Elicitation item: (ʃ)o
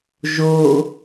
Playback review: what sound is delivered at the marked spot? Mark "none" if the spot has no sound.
ʒ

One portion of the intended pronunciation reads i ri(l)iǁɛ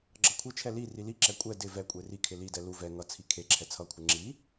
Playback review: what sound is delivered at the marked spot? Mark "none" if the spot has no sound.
l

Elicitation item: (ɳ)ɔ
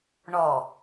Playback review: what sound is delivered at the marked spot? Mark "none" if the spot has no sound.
ɳ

